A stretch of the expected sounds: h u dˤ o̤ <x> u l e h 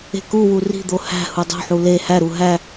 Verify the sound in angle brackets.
incorrect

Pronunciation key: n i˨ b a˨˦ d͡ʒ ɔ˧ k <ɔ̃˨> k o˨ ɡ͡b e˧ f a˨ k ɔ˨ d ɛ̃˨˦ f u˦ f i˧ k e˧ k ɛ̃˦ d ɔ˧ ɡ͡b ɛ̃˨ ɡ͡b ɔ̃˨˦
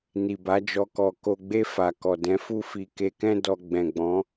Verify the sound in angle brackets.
incorrect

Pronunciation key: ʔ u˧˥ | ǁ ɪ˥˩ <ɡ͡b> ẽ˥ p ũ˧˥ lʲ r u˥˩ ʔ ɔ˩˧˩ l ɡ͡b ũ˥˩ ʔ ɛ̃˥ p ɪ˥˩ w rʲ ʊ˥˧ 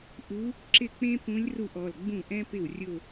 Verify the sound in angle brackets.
incorrect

